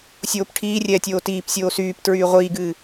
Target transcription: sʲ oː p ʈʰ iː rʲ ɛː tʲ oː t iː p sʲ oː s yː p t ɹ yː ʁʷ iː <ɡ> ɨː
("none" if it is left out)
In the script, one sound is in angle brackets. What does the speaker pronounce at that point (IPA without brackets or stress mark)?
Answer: ɡ